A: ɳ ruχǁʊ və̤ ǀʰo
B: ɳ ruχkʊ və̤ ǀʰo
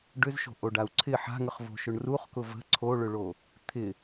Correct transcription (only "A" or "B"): B